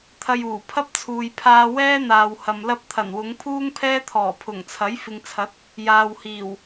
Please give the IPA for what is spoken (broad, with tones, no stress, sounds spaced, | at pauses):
t̪ʰ ɐ˧ j uː˨˩ pʰ ɐ˥ p̚ t͡sʰ uː˨ j pʰ aː˧ w ɛː˥ n̪ aː˨ w h ɐ˨ m l ɐ˥ p̚ t̪ʰ ɐ˨˩ n w ʊ˨˧ ŋ pʰ uː˥ ŋ pʰ ɛː˥ t̪ʰ ɔː˨˩ pʰ ʊ˨˩ ŋ t͡sʰ ɐ˨˥ j f ɪ˨ ŋ t͡sʰ ɐ˨˥ t̚ | j aː˨ w h iː˨˩ w